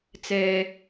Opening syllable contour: low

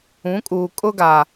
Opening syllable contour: rising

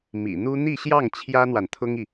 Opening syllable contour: low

